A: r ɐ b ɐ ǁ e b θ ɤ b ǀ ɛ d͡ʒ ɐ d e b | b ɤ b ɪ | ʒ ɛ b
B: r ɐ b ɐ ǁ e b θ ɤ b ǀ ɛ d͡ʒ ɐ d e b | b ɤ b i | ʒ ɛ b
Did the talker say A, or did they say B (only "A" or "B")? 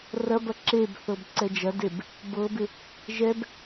A